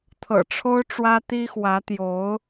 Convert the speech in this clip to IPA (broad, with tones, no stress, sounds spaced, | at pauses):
t̪ʰ ɤ̰˨˩ ʈ͡ʂʰ o˥ ʊ̯ ʈ͡ʂ w ä˥ t̪ i˥ x w ä˧˥ t̪ j o˧˥ ʊ̯